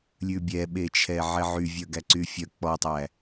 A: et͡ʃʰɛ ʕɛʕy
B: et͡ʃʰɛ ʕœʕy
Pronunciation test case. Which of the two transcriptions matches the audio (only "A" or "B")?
A